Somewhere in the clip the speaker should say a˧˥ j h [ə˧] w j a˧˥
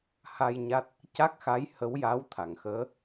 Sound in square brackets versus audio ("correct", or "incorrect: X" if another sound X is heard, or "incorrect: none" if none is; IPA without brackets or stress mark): incorrect: ə˧˥